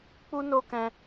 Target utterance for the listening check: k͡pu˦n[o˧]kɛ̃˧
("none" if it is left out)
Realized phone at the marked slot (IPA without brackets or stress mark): o˧